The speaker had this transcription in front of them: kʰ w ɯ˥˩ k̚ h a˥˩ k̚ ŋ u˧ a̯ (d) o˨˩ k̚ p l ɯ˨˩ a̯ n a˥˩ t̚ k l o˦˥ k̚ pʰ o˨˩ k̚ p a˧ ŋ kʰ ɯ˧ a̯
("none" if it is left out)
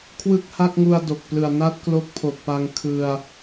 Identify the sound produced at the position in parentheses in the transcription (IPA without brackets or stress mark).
d